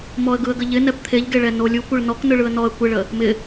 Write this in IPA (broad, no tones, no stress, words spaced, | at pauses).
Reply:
mɔə̯ɡɯə̯ɡəʎɪ nɛpt̪ʰeʎɡeɭɛ nolʲukʷɯɭ nɔk nɯɭɯə̯nɔə̯ kʷeɭə | mɪ